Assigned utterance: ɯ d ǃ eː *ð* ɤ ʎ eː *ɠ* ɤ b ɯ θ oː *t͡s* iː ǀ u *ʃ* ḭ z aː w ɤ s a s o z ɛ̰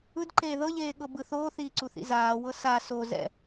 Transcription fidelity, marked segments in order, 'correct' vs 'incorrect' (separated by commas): correct, correct, incorrect, incorrect